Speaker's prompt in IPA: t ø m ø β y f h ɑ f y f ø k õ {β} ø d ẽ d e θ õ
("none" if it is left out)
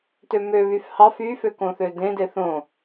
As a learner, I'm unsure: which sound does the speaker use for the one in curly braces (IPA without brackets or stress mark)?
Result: θ